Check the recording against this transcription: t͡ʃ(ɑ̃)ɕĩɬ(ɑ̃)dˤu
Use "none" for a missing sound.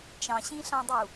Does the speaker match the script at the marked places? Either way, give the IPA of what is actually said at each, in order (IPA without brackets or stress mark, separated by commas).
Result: ɑ̃, ɑ̃